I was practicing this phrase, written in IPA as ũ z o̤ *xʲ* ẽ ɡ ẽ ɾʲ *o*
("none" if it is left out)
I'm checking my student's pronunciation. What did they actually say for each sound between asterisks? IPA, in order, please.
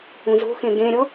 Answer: x, ɔ

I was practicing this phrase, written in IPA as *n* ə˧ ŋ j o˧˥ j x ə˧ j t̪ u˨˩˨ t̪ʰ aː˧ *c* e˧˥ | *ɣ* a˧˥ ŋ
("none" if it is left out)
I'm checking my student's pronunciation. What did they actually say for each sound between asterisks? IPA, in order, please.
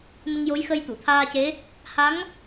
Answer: n, c, h

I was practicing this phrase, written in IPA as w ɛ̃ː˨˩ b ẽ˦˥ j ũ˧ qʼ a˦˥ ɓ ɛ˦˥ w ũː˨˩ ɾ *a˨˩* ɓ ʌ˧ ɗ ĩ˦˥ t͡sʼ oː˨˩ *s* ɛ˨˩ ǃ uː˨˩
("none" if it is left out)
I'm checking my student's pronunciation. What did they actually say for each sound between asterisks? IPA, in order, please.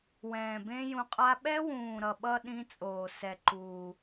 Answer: ʌ˨˩, s

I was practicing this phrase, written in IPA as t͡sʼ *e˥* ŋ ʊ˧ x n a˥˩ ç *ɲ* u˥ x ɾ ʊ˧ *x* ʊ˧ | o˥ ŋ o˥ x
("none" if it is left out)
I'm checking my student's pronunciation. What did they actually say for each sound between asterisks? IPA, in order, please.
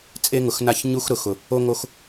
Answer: e˥, ɲ, x

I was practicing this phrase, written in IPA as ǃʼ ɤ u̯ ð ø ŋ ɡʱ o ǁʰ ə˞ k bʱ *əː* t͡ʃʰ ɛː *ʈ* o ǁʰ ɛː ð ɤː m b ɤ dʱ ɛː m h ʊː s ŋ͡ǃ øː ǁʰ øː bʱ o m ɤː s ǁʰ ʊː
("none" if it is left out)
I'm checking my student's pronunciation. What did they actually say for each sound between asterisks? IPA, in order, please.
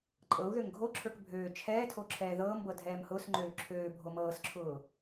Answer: øː, tʰ

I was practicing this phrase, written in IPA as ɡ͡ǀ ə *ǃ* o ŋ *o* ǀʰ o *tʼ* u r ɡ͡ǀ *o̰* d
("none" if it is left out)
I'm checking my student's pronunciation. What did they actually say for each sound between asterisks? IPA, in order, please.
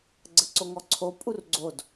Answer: ǀ, ɔ, pʼ, o

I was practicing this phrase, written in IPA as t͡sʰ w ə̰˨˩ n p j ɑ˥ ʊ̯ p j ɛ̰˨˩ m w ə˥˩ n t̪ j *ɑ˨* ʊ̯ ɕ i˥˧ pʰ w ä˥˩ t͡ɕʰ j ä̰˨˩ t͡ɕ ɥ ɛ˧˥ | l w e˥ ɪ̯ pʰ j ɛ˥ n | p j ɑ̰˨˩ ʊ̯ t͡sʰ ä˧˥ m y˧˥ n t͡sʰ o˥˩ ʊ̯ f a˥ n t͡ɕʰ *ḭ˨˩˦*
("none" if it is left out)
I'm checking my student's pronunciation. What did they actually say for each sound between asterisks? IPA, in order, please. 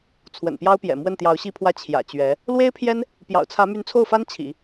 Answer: ɑ˧˥, ḭ˨˩˦

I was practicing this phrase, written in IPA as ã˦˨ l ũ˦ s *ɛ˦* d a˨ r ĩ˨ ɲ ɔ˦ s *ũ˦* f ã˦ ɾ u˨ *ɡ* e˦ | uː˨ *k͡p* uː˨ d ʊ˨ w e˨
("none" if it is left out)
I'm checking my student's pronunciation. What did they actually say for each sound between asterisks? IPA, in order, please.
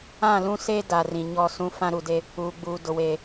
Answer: e˦, ũ˦, d, ɡ͡b

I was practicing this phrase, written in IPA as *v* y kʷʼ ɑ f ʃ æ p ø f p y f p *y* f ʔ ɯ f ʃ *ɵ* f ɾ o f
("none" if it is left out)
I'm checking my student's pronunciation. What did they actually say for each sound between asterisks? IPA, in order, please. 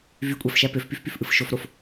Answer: v, y, o

